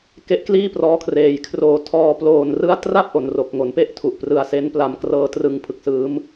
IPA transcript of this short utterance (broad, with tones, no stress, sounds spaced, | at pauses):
k e˦˥ ʔ k l iː˥˩ p r ɔː˦˥ kʰ r eː˨˩ j kʰ r oː˨˩ tʰ ɔː˧ p l oː˨˩ n r ɯ˦˥ a̯ t r a˥˩ p̚ ʔ o˨˩ n r o˨˩ k̚ ŋ o˩˦ n p e˥˩ ʔ tʰ u˨˩ ʔ p r ɯ˧ a̯ s e˦˥ n p l a˧ m k r ɤː˦˥ t r ɯ˧ ŋ pʰ ɯ˨˩ k̚ s ɯː˦˥ m